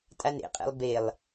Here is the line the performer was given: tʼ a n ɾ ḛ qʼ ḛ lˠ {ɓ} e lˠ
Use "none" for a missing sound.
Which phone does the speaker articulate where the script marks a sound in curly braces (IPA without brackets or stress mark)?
b